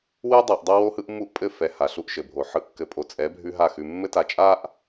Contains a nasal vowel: no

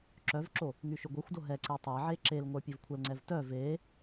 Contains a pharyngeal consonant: yes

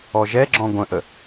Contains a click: yes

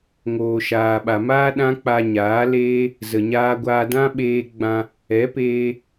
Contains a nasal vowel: yes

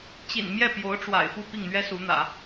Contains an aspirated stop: no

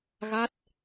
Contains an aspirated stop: no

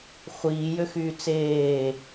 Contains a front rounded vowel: yes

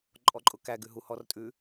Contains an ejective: yes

